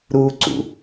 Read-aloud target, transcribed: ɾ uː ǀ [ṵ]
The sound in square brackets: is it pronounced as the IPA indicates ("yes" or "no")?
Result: yes